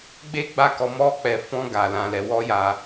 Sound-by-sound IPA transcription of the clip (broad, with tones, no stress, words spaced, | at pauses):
ɡ͡be˦ɡ͡ba˦˨kɔ˧ mɔ˦k͡pɛ˧fɔ̃˦ ɡa˧ lã˧lɛ˧ wɔ˦ja˧